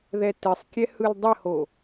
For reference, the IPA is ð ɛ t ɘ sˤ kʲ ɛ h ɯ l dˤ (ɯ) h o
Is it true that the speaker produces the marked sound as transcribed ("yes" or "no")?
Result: no